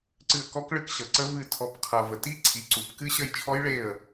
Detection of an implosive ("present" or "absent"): absent